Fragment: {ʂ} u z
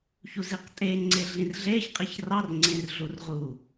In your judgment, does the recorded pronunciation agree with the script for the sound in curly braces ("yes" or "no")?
no